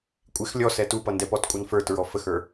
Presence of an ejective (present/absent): present